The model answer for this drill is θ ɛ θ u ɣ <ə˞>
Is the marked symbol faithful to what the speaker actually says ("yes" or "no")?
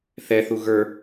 yes